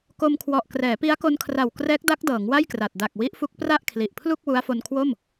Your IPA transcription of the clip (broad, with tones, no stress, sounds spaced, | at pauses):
k o˧ m kʰ w ɔ˨˩ ʔ k r ɛː˩˦ p i˦˥ a̯ k o˧ n kʰ r a˨˩ w k r ɛː˦˥ k̚ d a˦˥ k̚ d ɤː˩˦ ŋ w a˥˩ j k r a˨˩ t̚ d a˨˩ k̚ w i˦˥ ʔ f u˦˥ k̚ p r a˥˩ ʔ kʰ l i˨˩ ʔ pʰ l u˥˩ k̚ w u˦˥ a̯ f o˧ n kʰ w o˥˩ m